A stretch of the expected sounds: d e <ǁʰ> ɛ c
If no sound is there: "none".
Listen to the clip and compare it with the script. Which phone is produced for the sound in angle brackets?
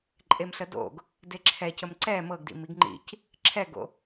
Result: ǁʰ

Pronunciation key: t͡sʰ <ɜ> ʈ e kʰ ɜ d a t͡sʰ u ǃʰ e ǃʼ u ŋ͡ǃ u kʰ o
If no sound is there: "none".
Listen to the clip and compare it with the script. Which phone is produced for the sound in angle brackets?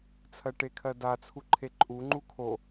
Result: ɜ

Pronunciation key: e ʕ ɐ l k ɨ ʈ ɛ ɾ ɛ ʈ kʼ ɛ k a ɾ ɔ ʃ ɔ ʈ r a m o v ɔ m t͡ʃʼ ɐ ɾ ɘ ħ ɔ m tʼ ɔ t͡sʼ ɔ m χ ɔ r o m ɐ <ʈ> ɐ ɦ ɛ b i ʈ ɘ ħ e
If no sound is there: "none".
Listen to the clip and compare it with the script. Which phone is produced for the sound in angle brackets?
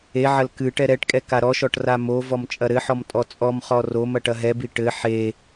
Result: ʈ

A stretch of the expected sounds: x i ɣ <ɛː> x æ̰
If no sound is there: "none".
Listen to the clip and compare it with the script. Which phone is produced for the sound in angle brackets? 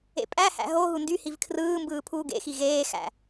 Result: eː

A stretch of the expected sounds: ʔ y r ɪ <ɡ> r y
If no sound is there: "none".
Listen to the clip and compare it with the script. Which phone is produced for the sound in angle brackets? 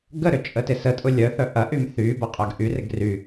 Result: ɡ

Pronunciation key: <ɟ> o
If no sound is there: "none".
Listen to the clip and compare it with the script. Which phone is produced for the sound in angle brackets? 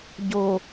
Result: ɟ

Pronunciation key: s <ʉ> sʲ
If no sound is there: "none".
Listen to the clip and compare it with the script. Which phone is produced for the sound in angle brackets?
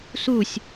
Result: u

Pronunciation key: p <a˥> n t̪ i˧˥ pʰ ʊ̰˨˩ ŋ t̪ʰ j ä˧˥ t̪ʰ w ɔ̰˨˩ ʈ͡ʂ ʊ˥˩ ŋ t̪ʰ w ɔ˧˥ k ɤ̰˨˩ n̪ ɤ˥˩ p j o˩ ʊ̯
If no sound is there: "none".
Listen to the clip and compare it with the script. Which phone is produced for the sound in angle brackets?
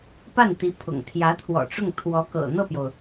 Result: a˥˩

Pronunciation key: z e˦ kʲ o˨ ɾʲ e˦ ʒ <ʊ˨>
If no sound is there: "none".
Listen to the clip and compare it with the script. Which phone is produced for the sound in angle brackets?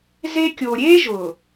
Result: ʊ˨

